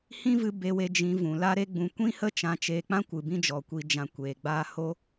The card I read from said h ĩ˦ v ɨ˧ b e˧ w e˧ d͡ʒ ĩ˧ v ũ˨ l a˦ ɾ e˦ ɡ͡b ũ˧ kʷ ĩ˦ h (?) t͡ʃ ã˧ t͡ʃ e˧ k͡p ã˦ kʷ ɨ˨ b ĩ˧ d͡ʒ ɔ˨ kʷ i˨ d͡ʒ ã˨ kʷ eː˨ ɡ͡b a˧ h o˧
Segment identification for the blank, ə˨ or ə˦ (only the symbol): ə˦